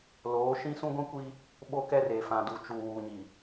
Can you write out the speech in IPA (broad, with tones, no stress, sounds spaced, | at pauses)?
l oː˨˦ ʃ ĩ˦ s ũ˦ ɡʷ ĩ˦ kʷ i˦ | ɓ o˦ k ɛ˦ r e˨ f ã˨ d u˨ t͡ʃ u˨ w uː˨ ɲ i˨